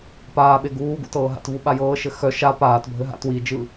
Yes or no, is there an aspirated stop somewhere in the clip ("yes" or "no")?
no